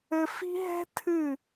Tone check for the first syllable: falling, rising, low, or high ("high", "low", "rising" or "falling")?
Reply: high